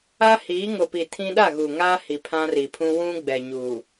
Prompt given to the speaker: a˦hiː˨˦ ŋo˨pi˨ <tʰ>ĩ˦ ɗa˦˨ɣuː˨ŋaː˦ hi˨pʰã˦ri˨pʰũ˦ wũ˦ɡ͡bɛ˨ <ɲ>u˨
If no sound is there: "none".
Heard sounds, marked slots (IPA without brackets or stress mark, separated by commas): tʰ, ɲ